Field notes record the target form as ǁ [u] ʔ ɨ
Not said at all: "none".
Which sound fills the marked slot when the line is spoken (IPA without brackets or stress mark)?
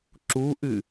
u